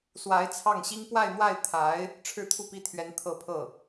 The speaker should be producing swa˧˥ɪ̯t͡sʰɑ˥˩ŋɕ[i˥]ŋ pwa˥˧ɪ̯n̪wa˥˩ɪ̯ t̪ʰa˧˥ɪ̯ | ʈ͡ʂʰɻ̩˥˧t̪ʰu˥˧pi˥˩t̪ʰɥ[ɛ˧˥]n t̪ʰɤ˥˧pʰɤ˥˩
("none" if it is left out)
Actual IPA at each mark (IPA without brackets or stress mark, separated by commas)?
i˥, ɛ˧˥